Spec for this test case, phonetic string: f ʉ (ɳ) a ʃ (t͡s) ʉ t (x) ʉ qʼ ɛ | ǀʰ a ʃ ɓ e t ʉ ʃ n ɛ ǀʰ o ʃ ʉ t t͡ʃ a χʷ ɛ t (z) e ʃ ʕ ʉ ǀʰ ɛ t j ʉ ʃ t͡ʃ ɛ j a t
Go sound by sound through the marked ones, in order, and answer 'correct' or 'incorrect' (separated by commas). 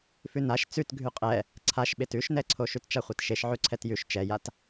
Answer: incorrect, correct, incorrect, incorrect